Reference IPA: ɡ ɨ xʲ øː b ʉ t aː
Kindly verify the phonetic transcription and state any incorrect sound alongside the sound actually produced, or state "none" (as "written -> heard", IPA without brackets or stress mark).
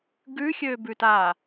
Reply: ɨ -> ʉ